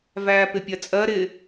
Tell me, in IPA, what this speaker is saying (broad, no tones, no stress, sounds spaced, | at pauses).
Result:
v æː p ɪ pʲ ɜ t͡sʼ ɜ ɾ ɪ